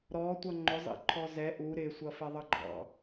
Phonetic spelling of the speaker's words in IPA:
ɾ ɔ tʷ ʌ ŋ͡ǃ ʊ zˤ ḭ ǃʰ ɔ z ɛ ʔ u ɾ ɪ sʷ ʌ f ɛ ðˤ ʌ ɡ͡ǃ ɑ̰

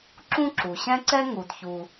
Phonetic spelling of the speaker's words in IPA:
ǁ ũ˥ ǁ u˩ ɕ ɛ̃˥ ǀ ɛ˥ ŋ u˩ d ç u˩

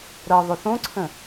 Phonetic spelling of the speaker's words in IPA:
ɾ ɤ ðˤ o θ õ ǀʰ ə̃

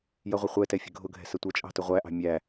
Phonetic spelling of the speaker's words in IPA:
j ʌ ʁʷ ɪ χʷ ɛ t ɛ fʲ ə̤ ɡʱ ʊ ɡʱ ɛ̤ s ə tʷ ʌ t͡ʃʼ ɑ̤ t ʊ ʁʷ æ ʔ ɑ̤ mʲ æ

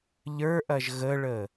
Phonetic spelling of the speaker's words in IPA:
ʎ ə˞ ʔ ɐ ʒ ɣ ə ɭ ə

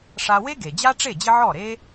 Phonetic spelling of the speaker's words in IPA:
ʂ a˧ w e˥ ɡ e˩ d͡ʑ a˥ ʈ͡ʂ e˥˩ d͡ʑ ɪ˥ ʕ ɔ˥˩ ɾ e˥

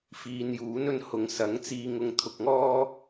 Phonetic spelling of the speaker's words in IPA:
f iː˨ n j uː˨˥ n ɵ˧ n h ʊ˨ ŋ s ɐ˨˥ ŋ t͡s iː˧ ŋ ʊ˧ ŋ t̪ʰ ʊ˧ k̚ ŋ ɔː˥

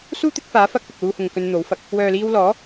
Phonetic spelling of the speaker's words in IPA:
s uː˥ t̪ ɪ˨˥ k̚ f aː˨˥ f ɐ˧ k̚ p ɪ˨ k̚ l uː˧ h ʊ˨ ŋ k ɵ˧ n n̪ o˨˥ w f ɐ˨ k̚ | w œː˨ l iː˧ w l ɔː˨˥

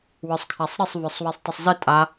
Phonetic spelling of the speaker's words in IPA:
w ə˞ sˤ kʰ a sˤ ɾ ɪ sˤ v ə˞ sˤ w i sˤ tˤ ə sˤ z ɪ tʼ a

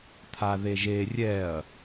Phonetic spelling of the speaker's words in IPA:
t̪ʰ a ð e ʒ e rʲ ɛ ɐ̯

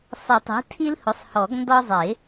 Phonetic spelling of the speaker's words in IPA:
sˤ ɪ˨˩˦ tˤ i̤˩˥ tʰ i˦ l h ʊ˩˥ sˤ h ɔ˨˩˦ ɡ n d ɒ˦ zˤ ɪ˨˩˦

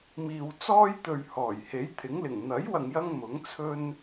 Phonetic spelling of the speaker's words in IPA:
m iː˨ w t͡s ɔː˥ j t̪ ɵ˨ ɥ h ɔː˨˩ j h e˨˥ j t̪ʰ ɪ˨˥ ŋ l ɪ˨˩ ŋ n̪ ɐ˨˥ j w ɐ˨ ŋ j ɐ˧ ŋ m ʊ˨˥ ŋ t͡sʰ ɵ˧ n

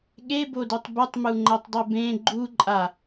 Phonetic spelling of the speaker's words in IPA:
ɠ e b o d u tˤ b u tˤ m u ŋ͡ǃ ɛ tˤ dˤ ʉ b ẽ ɡ͡ǃ u ǃʼ a

